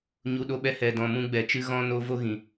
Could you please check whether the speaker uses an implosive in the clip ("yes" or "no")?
yes